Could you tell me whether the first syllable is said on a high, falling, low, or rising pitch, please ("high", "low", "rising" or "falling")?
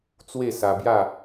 falling